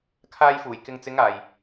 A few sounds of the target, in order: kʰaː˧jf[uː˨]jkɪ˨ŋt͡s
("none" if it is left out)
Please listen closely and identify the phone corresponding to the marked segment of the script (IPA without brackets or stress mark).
uː˨˩